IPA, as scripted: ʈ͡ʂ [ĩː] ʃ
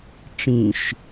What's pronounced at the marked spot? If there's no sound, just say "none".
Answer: ĩ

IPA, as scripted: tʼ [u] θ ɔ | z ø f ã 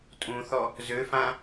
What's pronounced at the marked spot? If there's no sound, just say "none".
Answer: ũ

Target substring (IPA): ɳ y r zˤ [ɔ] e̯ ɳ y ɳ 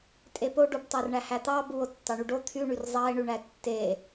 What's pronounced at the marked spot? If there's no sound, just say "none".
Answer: ɑ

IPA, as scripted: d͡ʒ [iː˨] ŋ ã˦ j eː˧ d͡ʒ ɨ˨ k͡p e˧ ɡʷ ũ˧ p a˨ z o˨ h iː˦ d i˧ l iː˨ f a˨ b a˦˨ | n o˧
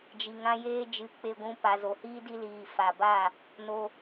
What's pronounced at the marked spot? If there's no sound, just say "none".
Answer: i˨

